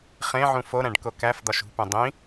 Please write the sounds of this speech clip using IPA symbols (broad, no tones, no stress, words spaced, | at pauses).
χẽʕũ foɾæ̃ɖ kokæfd̪ɒʃ ṳpẽ dˤĩ